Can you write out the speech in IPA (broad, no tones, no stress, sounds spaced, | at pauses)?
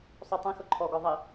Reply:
sˤ u tˤ ĩ x ʊ ǃʰ ɔ ɡ ɔ ðˤ i